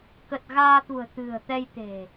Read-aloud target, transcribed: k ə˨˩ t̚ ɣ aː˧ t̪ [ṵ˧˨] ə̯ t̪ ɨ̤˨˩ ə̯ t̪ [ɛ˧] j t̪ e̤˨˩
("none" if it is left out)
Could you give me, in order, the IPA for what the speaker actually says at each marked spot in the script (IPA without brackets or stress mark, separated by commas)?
ṳ˨˩, ɛ˧